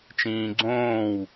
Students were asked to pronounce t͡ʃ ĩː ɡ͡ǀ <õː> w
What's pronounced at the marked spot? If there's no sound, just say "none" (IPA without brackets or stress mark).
õː